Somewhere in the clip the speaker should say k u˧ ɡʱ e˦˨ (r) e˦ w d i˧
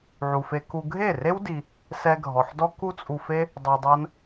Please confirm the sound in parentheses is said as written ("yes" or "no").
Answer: yes